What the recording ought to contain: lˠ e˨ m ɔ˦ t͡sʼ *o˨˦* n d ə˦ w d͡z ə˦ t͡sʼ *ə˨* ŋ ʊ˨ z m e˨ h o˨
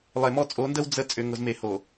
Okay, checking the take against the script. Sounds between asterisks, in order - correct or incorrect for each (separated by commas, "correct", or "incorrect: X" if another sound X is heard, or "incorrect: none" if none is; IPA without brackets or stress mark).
correct, incorrect: ʏ˨